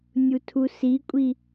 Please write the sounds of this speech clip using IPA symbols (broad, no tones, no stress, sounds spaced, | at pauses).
nʲ u tʰ u s i kʷʼ i